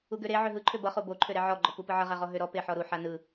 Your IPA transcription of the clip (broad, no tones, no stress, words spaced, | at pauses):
uɡøɾe ʕøɦɯǃʰø bʌχo boǃʰø ɾeʕɔɡ͡ǃɔ pupɯʕʌʁa ʁɔɦøɾɔ peħɔɾu ħanɯ